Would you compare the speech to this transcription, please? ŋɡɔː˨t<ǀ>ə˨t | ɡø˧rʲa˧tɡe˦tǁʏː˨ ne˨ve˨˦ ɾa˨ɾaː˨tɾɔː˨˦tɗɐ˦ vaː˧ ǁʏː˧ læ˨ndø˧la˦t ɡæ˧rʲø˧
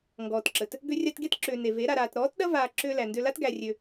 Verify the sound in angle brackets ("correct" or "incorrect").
incorrect